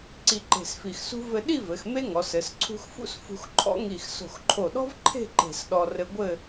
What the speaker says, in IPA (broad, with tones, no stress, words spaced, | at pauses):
ǀi˧ǃe̤˧˩sfi˧˩xsṳ˥ vɘ˧ɗi˥˧vɘ˩˧x me˥ ŋɔ˩˧sɘ˩˧s ǀʰṳ˧xfṵ˥s fṳ˧xǃʰɔ̰˥ŋi˧˩x so̤˧˩xǃʰo˧˩ɗɔ̤˥vǃʰe̤˥˧ ǃe̤˧˩sɗɔ˧ rɘ˧ɡʷɘ˥˧